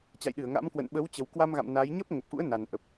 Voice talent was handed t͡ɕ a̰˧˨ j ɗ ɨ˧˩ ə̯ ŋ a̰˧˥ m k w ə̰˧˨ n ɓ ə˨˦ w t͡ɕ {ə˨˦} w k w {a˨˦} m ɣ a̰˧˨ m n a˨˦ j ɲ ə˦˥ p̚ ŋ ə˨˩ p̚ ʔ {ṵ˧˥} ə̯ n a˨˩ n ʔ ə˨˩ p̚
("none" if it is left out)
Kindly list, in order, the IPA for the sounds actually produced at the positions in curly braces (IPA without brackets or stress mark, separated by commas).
ə˨˩, a˧, ṵ˧˥